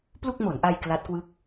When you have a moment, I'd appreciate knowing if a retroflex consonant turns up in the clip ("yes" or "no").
no